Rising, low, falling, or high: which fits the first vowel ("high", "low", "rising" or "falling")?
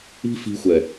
high